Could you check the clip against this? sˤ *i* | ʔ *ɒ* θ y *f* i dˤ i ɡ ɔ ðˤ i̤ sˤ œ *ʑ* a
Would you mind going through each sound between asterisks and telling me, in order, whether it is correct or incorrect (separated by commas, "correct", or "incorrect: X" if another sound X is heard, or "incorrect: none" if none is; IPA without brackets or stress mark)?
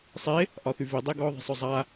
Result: incorrect: e, correct, incorrect: v, incorrect: zˤ